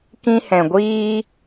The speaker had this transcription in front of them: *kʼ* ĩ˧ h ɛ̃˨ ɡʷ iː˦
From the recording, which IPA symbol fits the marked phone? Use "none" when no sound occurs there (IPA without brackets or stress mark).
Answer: k